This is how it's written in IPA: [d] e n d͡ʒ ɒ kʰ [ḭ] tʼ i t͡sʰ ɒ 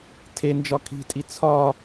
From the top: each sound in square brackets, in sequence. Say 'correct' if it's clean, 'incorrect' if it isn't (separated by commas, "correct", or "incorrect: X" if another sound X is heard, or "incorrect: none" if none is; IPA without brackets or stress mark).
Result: incorrect: tʰ, incorrect: i̤